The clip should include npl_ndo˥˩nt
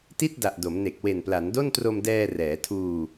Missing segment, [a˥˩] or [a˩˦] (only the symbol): a˩˦